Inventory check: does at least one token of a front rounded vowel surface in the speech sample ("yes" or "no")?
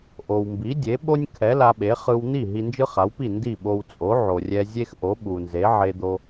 no